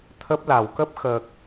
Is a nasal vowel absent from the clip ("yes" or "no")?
yes